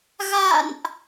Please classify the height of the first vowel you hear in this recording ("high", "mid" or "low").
low